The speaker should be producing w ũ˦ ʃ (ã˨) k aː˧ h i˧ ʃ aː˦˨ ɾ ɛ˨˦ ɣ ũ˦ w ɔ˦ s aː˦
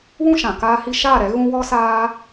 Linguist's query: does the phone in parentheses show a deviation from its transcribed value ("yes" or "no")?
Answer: no